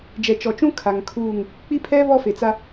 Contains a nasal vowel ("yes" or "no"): yes